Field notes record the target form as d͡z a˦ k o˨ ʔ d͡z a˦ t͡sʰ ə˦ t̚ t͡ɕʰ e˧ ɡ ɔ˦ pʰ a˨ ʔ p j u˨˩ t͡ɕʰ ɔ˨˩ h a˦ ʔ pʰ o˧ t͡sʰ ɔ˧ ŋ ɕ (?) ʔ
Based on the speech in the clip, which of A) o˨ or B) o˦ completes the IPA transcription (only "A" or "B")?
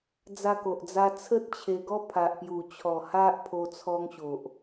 A